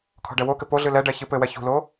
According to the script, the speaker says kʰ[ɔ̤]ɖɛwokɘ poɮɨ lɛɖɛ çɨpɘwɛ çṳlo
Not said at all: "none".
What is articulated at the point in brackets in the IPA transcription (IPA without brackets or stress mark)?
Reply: ɔ̤